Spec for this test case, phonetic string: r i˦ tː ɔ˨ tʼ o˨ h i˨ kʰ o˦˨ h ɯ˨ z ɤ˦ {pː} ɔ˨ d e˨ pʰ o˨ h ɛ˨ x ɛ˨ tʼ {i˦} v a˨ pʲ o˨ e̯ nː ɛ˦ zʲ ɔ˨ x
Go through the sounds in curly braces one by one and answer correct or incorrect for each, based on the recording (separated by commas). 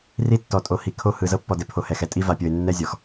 correct, correct